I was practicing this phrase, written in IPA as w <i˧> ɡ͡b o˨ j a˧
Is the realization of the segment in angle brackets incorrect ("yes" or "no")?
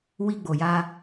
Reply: no